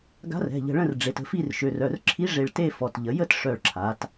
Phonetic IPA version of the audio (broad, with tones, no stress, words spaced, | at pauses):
ɡa̤˧˥rɛ̤˩˧˩ʎə̤˧˩ ɭə̃˥˨rɖ͡ʐe˩˧tə̤˧˩fi˥˨r ʃø˩˧˩rœ˩˧˩rǁʰi˧˥ ʐe˧˩ɭte˥˨fɔ˩˧˩t ʎə˩˧jə˥˨t ʂœ˧˩ɭǁʰa˩˧t